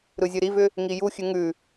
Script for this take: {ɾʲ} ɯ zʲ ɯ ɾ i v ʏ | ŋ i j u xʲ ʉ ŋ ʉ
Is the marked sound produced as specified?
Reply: no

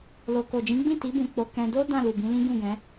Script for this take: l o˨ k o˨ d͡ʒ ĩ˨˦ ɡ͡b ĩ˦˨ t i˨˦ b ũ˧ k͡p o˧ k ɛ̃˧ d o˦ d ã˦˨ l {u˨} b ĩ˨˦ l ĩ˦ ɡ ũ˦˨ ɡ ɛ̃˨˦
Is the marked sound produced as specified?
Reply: yes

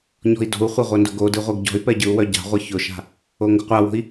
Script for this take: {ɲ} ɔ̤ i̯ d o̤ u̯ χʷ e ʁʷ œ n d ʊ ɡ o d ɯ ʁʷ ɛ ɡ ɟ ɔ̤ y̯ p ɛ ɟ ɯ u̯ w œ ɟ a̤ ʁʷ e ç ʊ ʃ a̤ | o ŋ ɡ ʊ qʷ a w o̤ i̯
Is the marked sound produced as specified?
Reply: yes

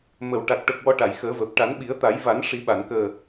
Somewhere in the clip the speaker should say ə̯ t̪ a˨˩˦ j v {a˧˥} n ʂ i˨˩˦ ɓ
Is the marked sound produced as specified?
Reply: no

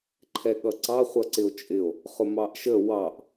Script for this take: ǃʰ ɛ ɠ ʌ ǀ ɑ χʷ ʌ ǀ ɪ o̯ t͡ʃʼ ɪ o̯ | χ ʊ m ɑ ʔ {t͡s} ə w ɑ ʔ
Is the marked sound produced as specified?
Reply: no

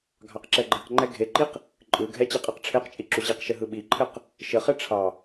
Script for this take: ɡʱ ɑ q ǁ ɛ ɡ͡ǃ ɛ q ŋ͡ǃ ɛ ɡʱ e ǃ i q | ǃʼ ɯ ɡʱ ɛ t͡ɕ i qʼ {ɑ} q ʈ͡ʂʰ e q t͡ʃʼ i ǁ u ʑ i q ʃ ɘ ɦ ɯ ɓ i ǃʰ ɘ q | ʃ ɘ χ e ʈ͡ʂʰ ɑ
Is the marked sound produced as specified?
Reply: yes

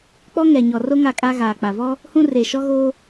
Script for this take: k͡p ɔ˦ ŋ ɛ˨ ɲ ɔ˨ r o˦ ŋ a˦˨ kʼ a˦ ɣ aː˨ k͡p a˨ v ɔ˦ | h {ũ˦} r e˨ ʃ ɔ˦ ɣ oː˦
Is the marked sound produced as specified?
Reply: yes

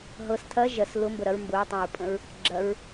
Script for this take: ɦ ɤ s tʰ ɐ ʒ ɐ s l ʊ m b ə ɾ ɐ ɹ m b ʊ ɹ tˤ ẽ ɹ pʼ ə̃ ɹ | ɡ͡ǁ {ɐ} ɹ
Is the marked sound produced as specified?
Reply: yes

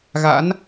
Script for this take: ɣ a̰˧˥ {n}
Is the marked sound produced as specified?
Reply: yes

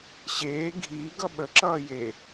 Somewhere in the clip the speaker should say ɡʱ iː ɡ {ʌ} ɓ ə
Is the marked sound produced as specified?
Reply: yes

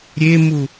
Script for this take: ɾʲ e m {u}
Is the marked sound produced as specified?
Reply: yes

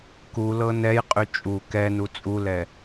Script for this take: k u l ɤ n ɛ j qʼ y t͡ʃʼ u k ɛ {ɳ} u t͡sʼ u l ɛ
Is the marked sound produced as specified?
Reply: no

